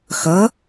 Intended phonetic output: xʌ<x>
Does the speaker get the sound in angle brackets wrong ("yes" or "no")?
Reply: yes